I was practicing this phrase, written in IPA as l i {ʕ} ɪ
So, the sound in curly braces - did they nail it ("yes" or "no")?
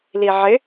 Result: yes